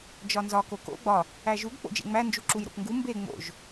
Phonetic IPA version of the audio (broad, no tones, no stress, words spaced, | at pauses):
d͡ʒɒnzɒ koko̰ ɡ͡bɒ | æʒuɡ k͡po̰d͡ʒḛŋ͡mæ nd͡ʒuǁujɾo̰pŋɡu mbe ŋ͡mo̰ʒ